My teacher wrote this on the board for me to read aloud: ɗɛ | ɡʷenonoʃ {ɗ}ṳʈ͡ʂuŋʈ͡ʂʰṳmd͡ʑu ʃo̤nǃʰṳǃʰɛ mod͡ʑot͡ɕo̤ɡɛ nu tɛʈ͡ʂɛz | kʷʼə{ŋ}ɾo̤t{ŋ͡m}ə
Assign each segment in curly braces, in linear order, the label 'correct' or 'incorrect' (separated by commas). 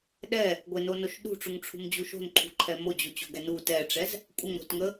correct, correct, incorrect